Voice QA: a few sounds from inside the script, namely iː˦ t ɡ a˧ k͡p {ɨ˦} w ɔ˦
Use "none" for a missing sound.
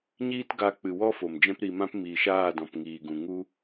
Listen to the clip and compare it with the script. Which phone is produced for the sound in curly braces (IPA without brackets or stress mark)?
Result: ɨ˨